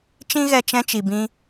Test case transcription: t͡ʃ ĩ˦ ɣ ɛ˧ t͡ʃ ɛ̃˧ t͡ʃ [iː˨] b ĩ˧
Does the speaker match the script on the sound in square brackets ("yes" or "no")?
no